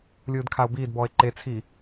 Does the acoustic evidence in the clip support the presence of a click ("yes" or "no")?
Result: yes